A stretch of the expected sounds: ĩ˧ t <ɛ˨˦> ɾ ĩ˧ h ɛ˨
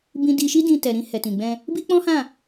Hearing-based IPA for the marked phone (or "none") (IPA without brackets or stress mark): ɛ˨